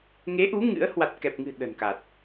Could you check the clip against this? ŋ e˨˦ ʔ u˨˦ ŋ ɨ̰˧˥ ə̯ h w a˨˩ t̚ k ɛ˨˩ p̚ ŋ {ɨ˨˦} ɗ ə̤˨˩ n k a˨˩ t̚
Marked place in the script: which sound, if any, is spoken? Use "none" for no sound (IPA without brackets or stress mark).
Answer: ɨ̤˨˩